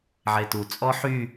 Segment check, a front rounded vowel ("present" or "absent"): present